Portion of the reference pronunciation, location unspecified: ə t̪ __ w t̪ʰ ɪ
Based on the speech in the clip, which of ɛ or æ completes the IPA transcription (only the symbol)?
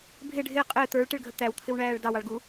æ